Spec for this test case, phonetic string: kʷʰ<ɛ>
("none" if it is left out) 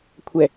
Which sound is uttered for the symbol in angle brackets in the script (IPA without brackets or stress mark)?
ɛ